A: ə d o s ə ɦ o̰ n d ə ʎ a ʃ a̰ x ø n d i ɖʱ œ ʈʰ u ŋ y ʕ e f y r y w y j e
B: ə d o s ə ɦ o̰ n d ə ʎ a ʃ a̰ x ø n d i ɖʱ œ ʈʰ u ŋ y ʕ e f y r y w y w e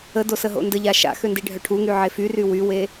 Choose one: B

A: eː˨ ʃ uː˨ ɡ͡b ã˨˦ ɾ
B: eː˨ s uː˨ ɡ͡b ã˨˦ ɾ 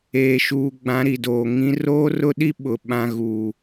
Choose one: A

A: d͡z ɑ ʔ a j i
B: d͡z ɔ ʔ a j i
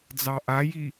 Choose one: A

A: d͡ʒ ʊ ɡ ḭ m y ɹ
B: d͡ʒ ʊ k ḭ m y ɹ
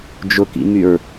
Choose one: B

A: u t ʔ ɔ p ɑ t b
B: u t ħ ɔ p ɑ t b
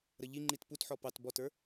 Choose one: B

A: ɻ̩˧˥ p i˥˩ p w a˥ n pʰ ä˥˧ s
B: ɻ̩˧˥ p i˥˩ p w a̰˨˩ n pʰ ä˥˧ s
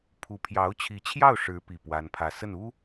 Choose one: A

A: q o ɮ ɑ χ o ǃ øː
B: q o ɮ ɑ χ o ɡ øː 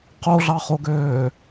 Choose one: B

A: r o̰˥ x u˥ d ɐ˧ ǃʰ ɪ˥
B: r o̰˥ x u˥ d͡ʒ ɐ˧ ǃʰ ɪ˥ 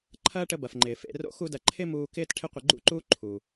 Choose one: A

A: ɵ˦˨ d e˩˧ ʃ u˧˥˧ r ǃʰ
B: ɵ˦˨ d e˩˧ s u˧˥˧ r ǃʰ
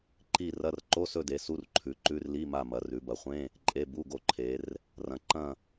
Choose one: B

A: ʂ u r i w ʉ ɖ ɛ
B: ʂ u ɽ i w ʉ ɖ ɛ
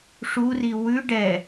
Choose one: A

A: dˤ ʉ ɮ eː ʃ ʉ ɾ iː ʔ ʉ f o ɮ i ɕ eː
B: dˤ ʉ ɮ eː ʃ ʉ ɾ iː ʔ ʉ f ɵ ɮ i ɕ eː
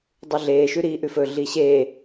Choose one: B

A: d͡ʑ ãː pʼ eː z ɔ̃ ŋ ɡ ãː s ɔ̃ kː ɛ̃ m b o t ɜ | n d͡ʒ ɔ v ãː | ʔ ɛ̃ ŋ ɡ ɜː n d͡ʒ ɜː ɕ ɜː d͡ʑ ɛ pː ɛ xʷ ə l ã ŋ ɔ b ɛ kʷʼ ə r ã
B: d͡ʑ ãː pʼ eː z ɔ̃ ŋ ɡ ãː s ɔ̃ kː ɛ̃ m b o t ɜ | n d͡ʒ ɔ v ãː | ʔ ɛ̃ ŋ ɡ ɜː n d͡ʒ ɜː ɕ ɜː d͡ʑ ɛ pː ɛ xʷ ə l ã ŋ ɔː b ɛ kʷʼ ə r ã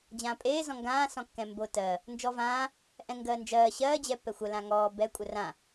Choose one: B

